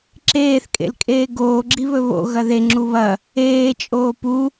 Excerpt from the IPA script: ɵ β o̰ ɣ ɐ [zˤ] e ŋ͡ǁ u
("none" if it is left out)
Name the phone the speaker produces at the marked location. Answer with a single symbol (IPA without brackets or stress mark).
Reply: ð